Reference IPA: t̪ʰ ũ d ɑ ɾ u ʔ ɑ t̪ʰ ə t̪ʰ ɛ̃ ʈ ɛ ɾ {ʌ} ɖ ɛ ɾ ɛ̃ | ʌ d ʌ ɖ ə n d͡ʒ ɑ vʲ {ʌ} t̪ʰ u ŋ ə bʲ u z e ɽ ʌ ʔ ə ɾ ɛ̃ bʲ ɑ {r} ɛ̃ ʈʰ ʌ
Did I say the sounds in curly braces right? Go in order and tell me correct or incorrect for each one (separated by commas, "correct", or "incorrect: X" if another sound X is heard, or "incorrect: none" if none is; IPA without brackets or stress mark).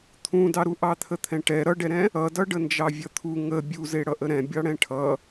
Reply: correct, correct, incorrect: ɽ